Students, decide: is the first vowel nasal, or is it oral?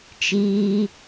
oral